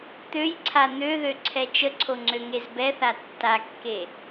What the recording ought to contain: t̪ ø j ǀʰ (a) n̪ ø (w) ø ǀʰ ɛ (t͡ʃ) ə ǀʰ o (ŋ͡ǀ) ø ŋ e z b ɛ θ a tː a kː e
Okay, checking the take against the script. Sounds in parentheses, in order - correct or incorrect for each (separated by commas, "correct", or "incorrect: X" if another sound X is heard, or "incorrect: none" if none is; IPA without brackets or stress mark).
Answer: correct, incorrect: ð, correct, correct